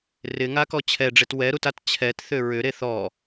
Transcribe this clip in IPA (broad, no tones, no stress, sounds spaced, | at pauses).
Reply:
r ɪ ŋ a k ɔ t͡ɕʰ ɛ ɖ͡ʐ e t w ɛ ɾ u t a t t͡ɕʰ ɛ t θ ʏ ɹ ʏ ɾ e θ ɔ